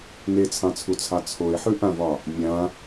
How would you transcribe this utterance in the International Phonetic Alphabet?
n e t͡sʰ ɑ̃ t͡sʰ u t͡sʰ ɑ t͡sʰ o e̯ ħ ʉ ʔ ã v ɒ | mʲ ã

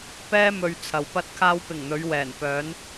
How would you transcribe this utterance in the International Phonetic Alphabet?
p ɛː˥ m ɵ˧ ɥ t͡sʰ ɐ˨ w p ɐ˧ t̚ kʰ aː˧ w p ɪ˨˩ ŋ n̪ ɵ˨˧ ɥ w ɛː˨˩ n p œː˨˧ n

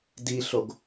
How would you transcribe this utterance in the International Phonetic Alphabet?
d i ɬ o ɡ

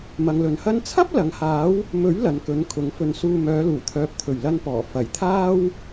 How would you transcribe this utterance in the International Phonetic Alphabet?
m ɐ˨ ŋ l ɵ˨ n h ɐ˥ n t͡sʰ ɐ˥ p̚ l ɐ˨˧ ŋ h aː˨˥ w | m ɵ˨˥ ɥ l ɐ˨ n k ɵ˨˧ n kʰ ʊ˨˧ ŋ f ɵ˧ n s uː˧ m œː˨˧ l uː˨˩ t̪ʰ œː˨ p̚ t̪ʰ ɵ˨˩ ɥ l ɐ˧ n p ɔː˨˩ f ɐ˨˩ j t̪ʰ aː˥ w

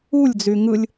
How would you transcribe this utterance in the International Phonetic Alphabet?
u lʲ d͡z y ŋ ɯ lʲ

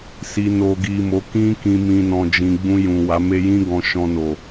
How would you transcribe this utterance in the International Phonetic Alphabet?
s i˨ n o˨ ɡ i˨ m o˨˦ k ĩ˧ k ĩ˨ m ĩ˨ n ɔ̃˨ d͡ʒ ĩ˨ ɡ͡b ũ˧ j ũ˨ w a˨˦ m e˦ j ĩ˦ ɡ ɔ̃˧ ʃ ɔ̃˧ n o˨

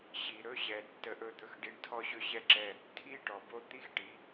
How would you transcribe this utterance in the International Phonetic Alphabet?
ɕ i˨ ɾ ɵ˦ ɕ ɛ˨ tː ə˦ ʔ ɵ˦ d̪ ɵ˦ x ɖ i˦ ɳ tʰ ɔ˦ ɕ ɵ˦ ɕ ɛ˦ ǁ ɛ˦ | tʰ i˦ ʈ ɔ˨ b o˦ t̪ i˦ x ʈ i˨˦

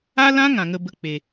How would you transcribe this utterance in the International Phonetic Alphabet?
a˦ l ã˦ ŋ ã˨ ŋ ə˧ b ə˧ k͡p e˨

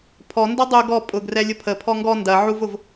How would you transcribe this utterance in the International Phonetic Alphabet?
pʰ ɔ n d ɒ dˤ u ɡ ɔ pʼ ʊ ɡ r ɛ lʲ ʊ pʰ ə pʰ ɔ ŋ ɡ ɔ n d ɐ ʕ u v ʊ v

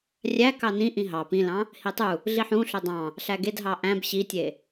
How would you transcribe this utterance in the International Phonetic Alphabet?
rʲ æ k ɑ n ĩ ʔ ĩ ɦ ɑ p ĩ l ɑ̃ | h i tˤ u | ɮ i ħ ũ ɬ ɵ dˤ ɑ̃ | ɬ æ ɡ e d ɦ ɑ ʔ æ̃ b ɕ i tʲ e

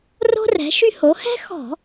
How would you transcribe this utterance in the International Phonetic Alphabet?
r o̤˥ r ɛ̤˩˥ ʃ y˥ h o˩˥ h ɛ̤˥ x ɔ̤˧˩˧

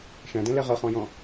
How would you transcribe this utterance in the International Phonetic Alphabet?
ʃ æ̃ d ɛ̃ l ɛ ʁ ʌ χ ɔ̃ j ɔ̃

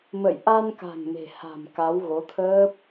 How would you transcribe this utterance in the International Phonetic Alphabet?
m ə̰˧˨ j ʔ a˧ n k a̤˨˩ ŋ m e̤˨˩ h a̤˨˩ m k a˨˦ w ɣ o˨˦ t̪ʰ əː˦˥ p̚

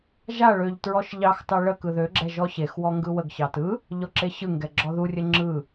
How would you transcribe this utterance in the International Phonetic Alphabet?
ʒ a ɭ ø ʎ t ɹ ɔ ʃ ʎ ɑ x t ɑ ɭ ə k ɯ ð ø ɡ͡ǁ ɛ ʒ ɔ ɕ e x w ɔ ŋ ɡ ɯ w ə ɡ ɕ ɑ t ɯ | ʎ ɔ ǁ e ɕ ɯ ŋ ɡ ɛ ɡ͡ǁ ɔ ð u rʲ ɘ ŋ͡ǁ ɯ

